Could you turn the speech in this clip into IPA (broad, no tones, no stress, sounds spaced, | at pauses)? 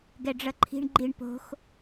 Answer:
ɡ ɛ ɖ͡ʐ ʌ ǃʰ i̤ ɳ ɡ͡ǃ i ɳ p o̤ x